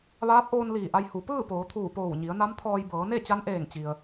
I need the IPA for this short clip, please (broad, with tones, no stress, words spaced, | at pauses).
ʋaː˧˥p̚ʔoː˧n liː˧˩ʔa˧j hu˩˧ pɯː˥˨poː˩˧t̪ʰuː˧˩ poː˧˩wɲi˩˧ə̯na˧˥mt̪ʰɔː˧j bɤː˩˧ne˥˨t͡ɕa˧˥nʔeː˧˩ŋ t͡ɕi˩ə̯